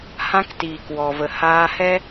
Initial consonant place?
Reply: glottal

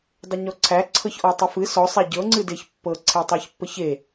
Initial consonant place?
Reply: alveolar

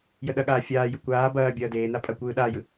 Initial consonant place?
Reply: palatal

